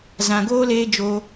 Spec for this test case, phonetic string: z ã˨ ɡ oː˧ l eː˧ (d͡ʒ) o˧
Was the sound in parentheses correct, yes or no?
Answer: yes